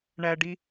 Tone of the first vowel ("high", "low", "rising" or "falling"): high